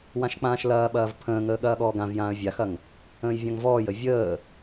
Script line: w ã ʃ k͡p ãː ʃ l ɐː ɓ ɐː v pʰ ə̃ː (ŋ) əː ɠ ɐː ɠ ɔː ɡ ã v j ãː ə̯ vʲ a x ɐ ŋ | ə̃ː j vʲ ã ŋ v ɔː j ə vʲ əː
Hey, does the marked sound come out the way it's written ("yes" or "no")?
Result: yes